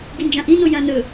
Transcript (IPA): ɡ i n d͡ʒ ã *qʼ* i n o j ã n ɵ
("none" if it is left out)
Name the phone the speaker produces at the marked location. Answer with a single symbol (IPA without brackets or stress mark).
ʔ